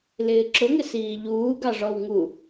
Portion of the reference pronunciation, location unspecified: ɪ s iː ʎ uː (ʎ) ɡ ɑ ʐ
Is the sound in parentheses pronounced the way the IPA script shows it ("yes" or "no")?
no